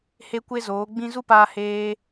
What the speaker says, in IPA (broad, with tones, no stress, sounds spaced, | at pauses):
h e˦ kʷ e˦ z oː˨˦ ɡ͡b ĩ˦ z u˦ p aː˧ h eː˦